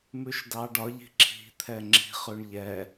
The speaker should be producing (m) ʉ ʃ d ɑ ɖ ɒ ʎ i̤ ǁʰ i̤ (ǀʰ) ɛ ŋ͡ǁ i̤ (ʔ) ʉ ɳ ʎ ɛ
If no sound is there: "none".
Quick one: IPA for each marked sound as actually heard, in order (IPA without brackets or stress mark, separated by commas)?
m, t̪ʰ, χ